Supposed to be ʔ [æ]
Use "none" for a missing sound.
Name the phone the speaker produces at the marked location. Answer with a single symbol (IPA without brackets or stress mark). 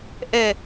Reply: ɛ